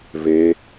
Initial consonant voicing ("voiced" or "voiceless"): voiced